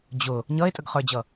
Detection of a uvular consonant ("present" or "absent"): present